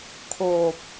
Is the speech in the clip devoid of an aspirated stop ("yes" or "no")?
no